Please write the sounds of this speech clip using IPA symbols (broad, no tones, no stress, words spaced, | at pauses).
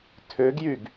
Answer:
tʰøɡjyɡ